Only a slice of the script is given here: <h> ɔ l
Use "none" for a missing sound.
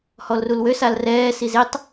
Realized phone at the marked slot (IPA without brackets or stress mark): h